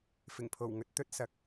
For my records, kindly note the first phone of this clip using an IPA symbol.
f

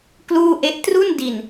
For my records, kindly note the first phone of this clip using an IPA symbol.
k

